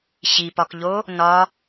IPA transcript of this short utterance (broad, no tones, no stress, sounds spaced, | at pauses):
ɕ i p ɒ k ʎ o | n ɒ